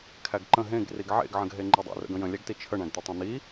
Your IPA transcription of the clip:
kʰ æ ɡ ǃ ə̃ ɦ ẽ ɡ r i ɡ ʕ ḛ ɡ ʕ ə̃ ɡ ɦ e ŋ͡ǃ e dˤ ḛ r ə̰ ɡ ə̃ j ə̃ lʲ æ ɡ t i t͡ʃʰ ə ɳ æ̃ ɡ t̪ ə tˤ ẽ n̪ i

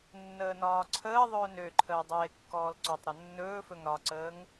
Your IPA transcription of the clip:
nː əː n ɒː ǀʰ əː ðˤ ɵː n ø ǃʰ əː dˤ eː kː ɔː l ǀ ɔ tˤ ɾ ɵ nː ɵː f ɵ ŋ ɾ ɒ ǀ əː ŋ

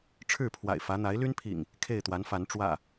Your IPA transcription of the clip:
ʈ͡ʂʰ ɻ̩˥˨ pʰ w a̰˨˩ ɪ̯ f ä˨˦ n̪ a˨˦ ɪ̯ l y˦ n pʰ ḭ˨˩ ŋ | kʰ e˥˨ ɪ̯ t̪ w a˨˦ n f a˨˦ n ʈ͡ʂ w ä̰˨˩

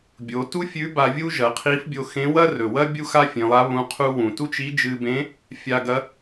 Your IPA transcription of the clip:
bʲ o˩˧ t u˥ fʲ ʉ˧˥ b a˧ vʲ u˥ ʒ ɐ˩˧ qʰ i˧˥ f bʲ o˧ x ẽ˧˥ w ɐ˥ r ɵ˩ w ɐ˥ bʲ u˥ x a˥ fʲ ẽ˩˧ lˠ a˧˥ β ũ˧˥ qʰ u˥ w ũ˩ t u˥ t͡ʃ i˧˥ d͡ʒ ɨ˧ b ẽ˧˥ | fʲ a˧ ɡ ɐ˧˥

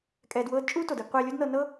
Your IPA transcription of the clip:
kʼ ɛː˧ d w ɤː˦ d t͡ʃʼ uː˦ t o˨ d ɤ˧ ɡ qʷ eː˧ lʲ o˦ d n ɤ˧ n ɤ˦

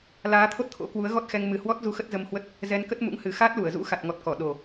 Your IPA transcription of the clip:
l aː˨˦ t̪ʰ o˦˥ t̚ t̪ʰ o̰˧˥ k w u˨˦ ə̯ ɣ ɔ˦˥ t̚ x ɛ˧ ŋ m ɨ˨˩ h w ɔ˦˥ t̚ z u˨˦ x ə˦˥ t̚ z ə˧ m h w ə˦˥ t̚ | z ɛ˧ n k ə˦˥ t̚ m ṵ˧˥ ŋ h ɨ˨˩ x aː˦˥ t̚ l u˧˩ ə̯ z ṵ˧˥ x a˨˩ t̚ ŋ ɔ˨˩ t̚ k ɔ˧˩ ɗ o˨˩

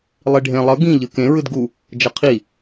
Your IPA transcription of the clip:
lˠ i ɖʱ ẽ lˠ ʌ ɡ ĩ ʎ ɯ k ẽ ɹ ɯ d ɡ u | d͡ʒ ʌ qʰ i

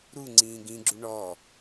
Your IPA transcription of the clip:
ɾ u ŋ͡ǀ ĩː ɡ ĩ ɡ͡ǁ u ɳ ɔ

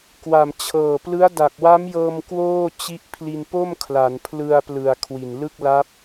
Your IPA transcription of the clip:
k w a˨˩ m t͡ɕʰ ɤː˨˩ p l ɯ˦˥ a̯ d a˨˩ k̚ w a˦˥ m j ɤː˧ m k w oː˥˩ t͡ɕ i˦˥ ʔ pʰ l i˧ n p o˥˩ m kʰ l a˩˦ n pʰ l ɯ˧ a̯ p l ɯ˨˩ a̯ kʰ w i˨˩ n l ɯ˥˩ k̚ l a˦˥ p̚

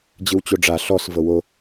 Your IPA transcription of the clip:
d͡ʑ ɯ w t͡ɕ o ɖ͡ʐ a ɬ ɔ s v ɤ w o

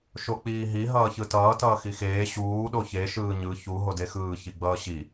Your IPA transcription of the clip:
ʃ o k͡p iː ɦ i ɦ ʌː ç ɯ t ʌː t ʌː x i x eː ɕ uː ɗ o ç e ʃ ɯː ɲ ɯ ç u ɦ o d e x ɯː ç i ɡ͡b ʌː ɕ i

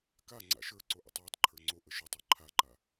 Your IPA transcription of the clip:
k a ŋ͡ǀ a̰ ʃ ə˞ ǀ o ʔ a̰ tˤ w ɔ tˤ ǃʰ ə˞ ŋ͡ǀ o ʔ ə ʃ œ tˤ ɔ ǃʰ a ǃ a

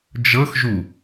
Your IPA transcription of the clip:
d͡ʒ ɤ x ʒ u

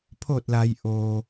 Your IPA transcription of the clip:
pʰ o˧˩ t̚ l a˩ j ʔ o˩

